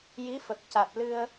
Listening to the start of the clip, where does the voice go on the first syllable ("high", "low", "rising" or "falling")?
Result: rising